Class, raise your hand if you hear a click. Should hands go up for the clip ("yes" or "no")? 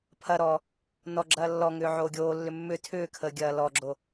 yes